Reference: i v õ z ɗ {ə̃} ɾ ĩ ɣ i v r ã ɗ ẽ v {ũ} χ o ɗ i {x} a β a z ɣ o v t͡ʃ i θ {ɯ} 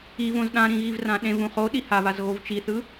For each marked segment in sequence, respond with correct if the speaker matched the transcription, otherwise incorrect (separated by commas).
incorrect, correct, incorrect, correct